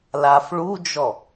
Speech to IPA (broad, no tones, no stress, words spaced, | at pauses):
lafɭud͡ʒɔ